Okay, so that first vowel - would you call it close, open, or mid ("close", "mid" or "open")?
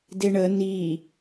mid